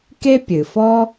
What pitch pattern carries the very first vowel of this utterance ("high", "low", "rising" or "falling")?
high